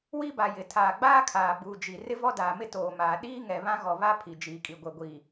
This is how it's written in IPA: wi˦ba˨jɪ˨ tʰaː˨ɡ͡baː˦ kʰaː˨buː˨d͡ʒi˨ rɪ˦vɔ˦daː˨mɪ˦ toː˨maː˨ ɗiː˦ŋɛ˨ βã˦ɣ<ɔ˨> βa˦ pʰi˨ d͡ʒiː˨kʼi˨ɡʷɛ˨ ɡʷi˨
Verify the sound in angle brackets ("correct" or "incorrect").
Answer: correct